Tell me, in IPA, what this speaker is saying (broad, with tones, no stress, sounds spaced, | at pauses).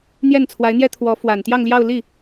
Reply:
n̪ j ɛ˥˩ n t͡sʰ w a˧˥ ɪ̯ n̪ j ɛ˥ t̪ʰ w ɔ˧˥ f w a˨˩ n t̪ j ɑ˥˧ ŋ l j ɑ˥˧ ʊ̯ l i˥˩